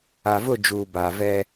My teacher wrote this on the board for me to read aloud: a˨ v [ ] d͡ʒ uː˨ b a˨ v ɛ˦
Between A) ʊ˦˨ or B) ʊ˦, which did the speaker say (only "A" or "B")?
A